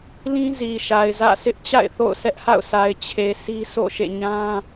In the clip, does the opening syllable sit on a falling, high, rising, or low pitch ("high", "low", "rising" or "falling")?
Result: high